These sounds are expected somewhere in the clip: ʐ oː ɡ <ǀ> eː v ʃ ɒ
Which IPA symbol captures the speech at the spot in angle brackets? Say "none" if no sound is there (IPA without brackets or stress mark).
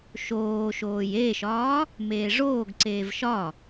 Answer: ǀ